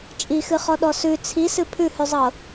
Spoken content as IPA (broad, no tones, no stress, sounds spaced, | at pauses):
t͡ʃʼ i x ɨ χ ɔ ɗ ɔ s ʉ t͡sʰ i s ɨ pʰ ʉ h ʉ zˤ ɤ